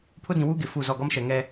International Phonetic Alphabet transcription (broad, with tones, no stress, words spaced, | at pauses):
pʰʊ˦dĩ˨wuː˦ ɡɪ˨ fu˦˨zɔ˦˨ ɡɔ˦mʃɛ˨ ŋɛ˦